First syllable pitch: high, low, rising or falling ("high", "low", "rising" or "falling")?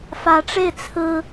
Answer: rising